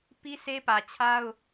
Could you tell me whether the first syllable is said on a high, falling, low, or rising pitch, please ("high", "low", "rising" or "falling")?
high